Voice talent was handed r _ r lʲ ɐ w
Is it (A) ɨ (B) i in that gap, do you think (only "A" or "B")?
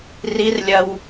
B